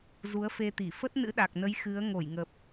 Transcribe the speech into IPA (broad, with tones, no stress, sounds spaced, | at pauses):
z u˨˦ ə̯ f e˧ t̪ i˧˩ f ə˦˥ t̚ n ɨ̰˧˥ ɗ a˨˩ k̚ n ə˨˦ j x ɨ˨˦ ə̯ ŋ o˧˩ j ŋ ə˨˩ p̚